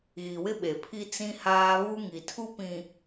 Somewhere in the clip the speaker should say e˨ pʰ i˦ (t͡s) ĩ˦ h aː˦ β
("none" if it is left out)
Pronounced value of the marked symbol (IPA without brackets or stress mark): t͡s